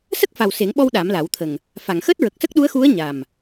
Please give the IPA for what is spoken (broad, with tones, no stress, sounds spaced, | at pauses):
s ə˦˥ k̚ f a˨˩ w s e˨˩˦ ŋ ɓ ɔ˧ w ɗ a˨˩˦ m l a˨˩˦ w t̪ʰ ə˨˩ ŋ | f a˨˩˨ ŋ x əː˦˥ t̚ ɹ ə˨˩ k̚ s ə˦˥ k̚ ɗ u˧˥ ə̯ x u˧˥ ə̯ ɲ a˨˩ m